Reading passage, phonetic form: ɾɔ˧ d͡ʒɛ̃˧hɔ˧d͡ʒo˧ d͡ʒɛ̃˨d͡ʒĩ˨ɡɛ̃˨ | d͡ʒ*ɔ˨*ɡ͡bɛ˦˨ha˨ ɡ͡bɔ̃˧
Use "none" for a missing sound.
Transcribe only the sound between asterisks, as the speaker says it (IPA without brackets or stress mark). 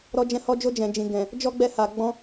ɔ˦